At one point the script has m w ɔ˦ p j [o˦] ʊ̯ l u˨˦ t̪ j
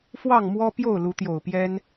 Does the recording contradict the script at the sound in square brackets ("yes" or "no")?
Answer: yes